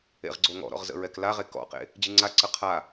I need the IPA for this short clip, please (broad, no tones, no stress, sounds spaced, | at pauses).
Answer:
ḛ ʁ ɡ͡ǀ o ŋ ɔ̰ ɾ ɔ̰ ʁ z ə̰ ɹ ɛ k l a ʁ e k ɔ̰ q ḛ | d͡ʑ ɨ ŋ͡ǀ a ǀ ə qʰ a